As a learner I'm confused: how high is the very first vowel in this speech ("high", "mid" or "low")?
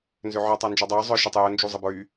mid